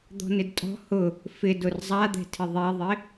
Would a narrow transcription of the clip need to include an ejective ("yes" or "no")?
yes